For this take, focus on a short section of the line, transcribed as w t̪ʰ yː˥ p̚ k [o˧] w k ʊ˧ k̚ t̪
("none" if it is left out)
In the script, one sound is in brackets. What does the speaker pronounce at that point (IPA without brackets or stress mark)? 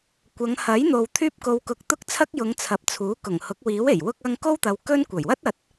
o˧